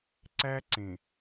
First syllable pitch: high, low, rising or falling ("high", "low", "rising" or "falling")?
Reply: high